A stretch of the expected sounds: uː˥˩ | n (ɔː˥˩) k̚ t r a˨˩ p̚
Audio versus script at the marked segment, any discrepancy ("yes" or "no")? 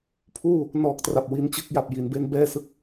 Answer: yes